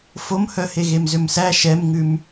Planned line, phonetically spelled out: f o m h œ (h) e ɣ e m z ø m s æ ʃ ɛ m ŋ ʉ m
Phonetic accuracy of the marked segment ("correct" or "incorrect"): correct